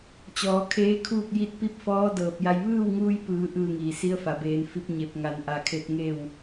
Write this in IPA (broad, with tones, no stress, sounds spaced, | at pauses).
t͡ɕ ɔː˩˧ kʰ eː˧˥ kʰ uː˥˨ k̚ j i˥˨ t̚ p i˥˨ p̚ f ɔː˧˥ d ɤː˧˩ p̚ j a˧ j ʋ ɯː˥˨ w ŋ uː˧ j p ɯː˩˧ ʔ ɯː˥˨ ŋ iː˩ s i˧˥ ə̯ f a˩ b eː˩˧ n f i˧ p̚ ɲ e˧˩ p̚ ŋ a˩˧ n ʔ a˧˩ kʰ e˧ t̚ ŋ e˥˨ w